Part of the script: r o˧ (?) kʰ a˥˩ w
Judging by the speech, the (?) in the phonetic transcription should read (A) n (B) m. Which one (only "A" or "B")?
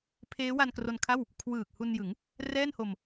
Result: A